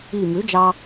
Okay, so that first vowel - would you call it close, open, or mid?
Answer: close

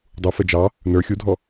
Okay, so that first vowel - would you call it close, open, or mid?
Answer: close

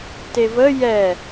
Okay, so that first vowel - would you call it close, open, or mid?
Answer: mid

